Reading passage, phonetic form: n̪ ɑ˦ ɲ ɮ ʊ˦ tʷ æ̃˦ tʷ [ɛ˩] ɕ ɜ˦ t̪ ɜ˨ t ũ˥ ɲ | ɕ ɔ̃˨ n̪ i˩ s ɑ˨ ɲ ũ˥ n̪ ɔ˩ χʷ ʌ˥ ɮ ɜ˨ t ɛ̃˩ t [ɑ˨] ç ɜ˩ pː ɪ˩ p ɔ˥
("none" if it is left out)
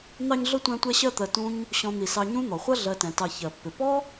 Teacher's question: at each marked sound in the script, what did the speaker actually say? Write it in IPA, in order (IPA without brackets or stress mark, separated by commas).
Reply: ɛ˦, ɑ˨